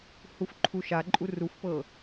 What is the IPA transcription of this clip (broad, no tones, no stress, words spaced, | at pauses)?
hufǃʰuʃaǃʼu rufpɤ